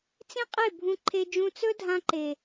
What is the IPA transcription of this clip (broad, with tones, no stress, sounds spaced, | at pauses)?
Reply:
t͡s ĩ˦ qʼ e˦˨ bʱ ũ˧ ǃʰ e˧ d͡ʒ ũ˧ t͡s ɵ˦ dʱ ã˧ ǃ e˨